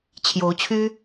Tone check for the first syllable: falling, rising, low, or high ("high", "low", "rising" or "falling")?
rising